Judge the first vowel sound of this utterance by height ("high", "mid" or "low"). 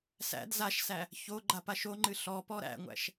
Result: low